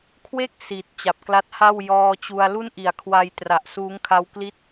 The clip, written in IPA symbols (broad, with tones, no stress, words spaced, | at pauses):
kʰwe˥˩k̚ si˨˩t̚ t͡ɕa˨˩p̚kla˦˥t̚ha˥˩w jɔː˧t͡ɕu˧a̯ lu˥˩nʔi˩˦a̯kʰwa˧j tra˨˩ʔsuː˦˥ŋkʰa˦˥w kli˥˩t̚